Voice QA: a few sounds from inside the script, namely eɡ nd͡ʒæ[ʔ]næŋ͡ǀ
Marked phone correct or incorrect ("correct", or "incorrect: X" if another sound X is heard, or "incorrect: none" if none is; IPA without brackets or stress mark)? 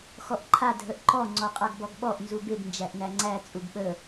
correct